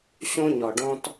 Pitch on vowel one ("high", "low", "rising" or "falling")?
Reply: high